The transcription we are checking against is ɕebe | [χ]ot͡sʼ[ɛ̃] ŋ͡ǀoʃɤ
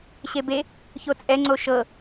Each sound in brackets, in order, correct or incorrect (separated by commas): incorrect, incorrect